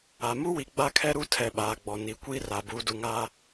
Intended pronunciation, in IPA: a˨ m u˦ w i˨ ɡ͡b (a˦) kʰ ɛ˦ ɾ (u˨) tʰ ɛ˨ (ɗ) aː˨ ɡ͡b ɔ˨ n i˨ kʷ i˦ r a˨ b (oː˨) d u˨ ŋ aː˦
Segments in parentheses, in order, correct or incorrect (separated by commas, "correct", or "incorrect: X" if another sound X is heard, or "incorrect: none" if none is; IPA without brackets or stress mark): correct, incorrect: u˦, incorrect: ɓ, incorrect: uː˨